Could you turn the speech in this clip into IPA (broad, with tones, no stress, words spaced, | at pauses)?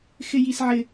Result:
xɪ˦ji˦sʕɪ˦